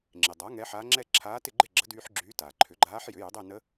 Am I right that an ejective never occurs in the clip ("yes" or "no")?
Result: yes